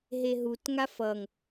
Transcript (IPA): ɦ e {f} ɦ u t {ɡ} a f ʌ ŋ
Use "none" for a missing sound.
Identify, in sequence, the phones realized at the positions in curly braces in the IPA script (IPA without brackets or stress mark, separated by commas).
none, ŋ